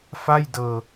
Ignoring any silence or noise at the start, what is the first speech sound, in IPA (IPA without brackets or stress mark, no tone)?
f